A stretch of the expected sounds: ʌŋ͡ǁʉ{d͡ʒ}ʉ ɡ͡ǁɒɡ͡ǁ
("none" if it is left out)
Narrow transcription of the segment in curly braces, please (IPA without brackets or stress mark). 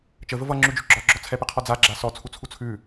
d͡ʒ